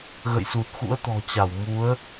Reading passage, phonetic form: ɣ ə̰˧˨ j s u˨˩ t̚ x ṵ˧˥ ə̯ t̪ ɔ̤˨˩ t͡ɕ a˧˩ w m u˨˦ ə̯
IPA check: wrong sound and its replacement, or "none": none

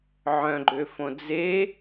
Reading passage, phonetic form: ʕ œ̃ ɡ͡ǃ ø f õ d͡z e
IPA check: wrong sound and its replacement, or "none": none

